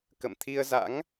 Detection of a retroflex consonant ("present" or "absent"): absent